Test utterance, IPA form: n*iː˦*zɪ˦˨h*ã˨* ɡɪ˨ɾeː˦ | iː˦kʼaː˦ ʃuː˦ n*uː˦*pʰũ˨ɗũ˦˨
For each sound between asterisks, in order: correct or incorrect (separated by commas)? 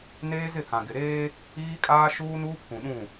incorrect, correct, correct